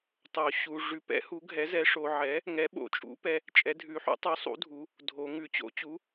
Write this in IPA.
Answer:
tˤ o˩˧ ɕ u˩˧ ʐ ʉ˩˥ p ɛ̰˩˥ h u˩˥ ɡʱ ɛ˩˥ z ɛ˩˥ ʂ o˩˧ ʕ ɛ˩˥ | ŋ ɛ˩˥ ɓ o̰˩˧ t͡ʃʼ ṵ˩˥ p ɛ˩˧ | t͡ʃʼ ɛ˩˥ dʱ ʉ˩˥ ħ ṵ˩˥ tˤ u˩˥ sˤ ṵ˩˥ dʱ u˩˧ | dʱ o˩˧ ŋ ʉ˩˧ t͡ɕ o̰˩˥ t͡ɕ u˩˥

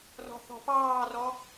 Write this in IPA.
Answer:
r ɔ̤ θ ɔ̤ p ɑː r ɔ

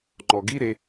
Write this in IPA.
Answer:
ŋ͡ǃ ɔ ɡ i ɾ e

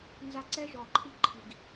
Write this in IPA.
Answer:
n z a˦ ǀ ɛ˦ ʒ ɔ˨ ǃʰ i˦ ǃʰ i˨ ɡ

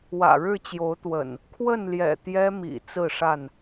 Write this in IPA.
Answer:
w ä̰˨˩ ɻ ɻ̩˥˨ t͡ɕ j o˨˦ ʊ̯ t̪ w ə̰˨˩ n | kʰ w ə˥˨ n l j ɛ̰˨˩ t̪ j ɛ˦ m ḭ˨˩ t͡s ɹ̩˥˨ ʂ a˥˨ n

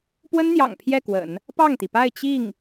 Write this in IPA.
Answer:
p w ə˥ n n̪ j ɑ̰˨˩ ŋ pʰ j ɛ˥˩ k w ə̰˨˩˦ n | p ɑ˥˩ ŋ t̪ i˩ p a˥˧ ɪ̯ t͡ɕ i˥˩ ŋ

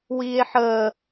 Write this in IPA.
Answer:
w iː e̯ ħ əː

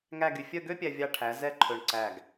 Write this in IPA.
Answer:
ŋ æ˥˧ ɡ y˧ fʲ œ˥˧ ɡ ø˥ pʲ æ˧ vʲ ɑ˧ ʈʰ æ˩˧ z ɛ˥˧ ǃʰ ɵ˧˩ ɳ ǀ æ˧˩ ɡ

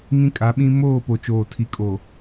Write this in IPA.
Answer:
ŋ ĩ˦ kʼ a˨˦ ɓ ĩ˦ m oː˦˨ p o˨ t͡ʃ oː˨ tʰ i˨ kʼ o˨

